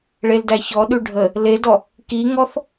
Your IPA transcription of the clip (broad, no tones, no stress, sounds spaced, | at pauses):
ɭ e l d æ ç ɔ ɗ ʉ ɖʱ ə | l e d ɔ | k i ŋ ɔ θ